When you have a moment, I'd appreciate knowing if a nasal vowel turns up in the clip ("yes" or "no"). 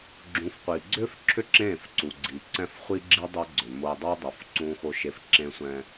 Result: yes